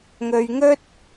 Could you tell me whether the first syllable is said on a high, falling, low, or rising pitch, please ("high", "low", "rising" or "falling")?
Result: low